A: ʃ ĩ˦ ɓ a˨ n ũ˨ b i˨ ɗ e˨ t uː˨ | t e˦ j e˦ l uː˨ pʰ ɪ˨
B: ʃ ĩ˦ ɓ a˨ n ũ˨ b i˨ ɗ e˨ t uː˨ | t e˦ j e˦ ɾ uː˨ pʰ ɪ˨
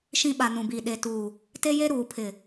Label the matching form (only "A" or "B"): B